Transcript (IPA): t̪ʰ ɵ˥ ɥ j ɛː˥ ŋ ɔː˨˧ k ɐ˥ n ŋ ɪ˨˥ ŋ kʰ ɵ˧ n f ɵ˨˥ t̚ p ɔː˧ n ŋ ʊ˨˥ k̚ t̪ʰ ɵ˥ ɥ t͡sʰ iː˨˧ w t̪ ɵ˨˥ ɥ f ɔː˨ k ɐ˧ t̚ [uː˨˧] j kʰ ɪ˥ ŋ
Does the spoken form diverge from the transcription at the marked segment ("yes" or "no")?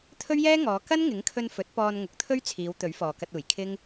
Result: yes